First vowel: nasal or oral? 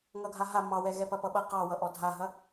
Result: oral